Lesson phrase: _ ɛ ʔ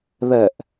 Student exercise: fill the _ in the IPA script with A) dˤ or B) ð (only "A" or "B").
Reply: B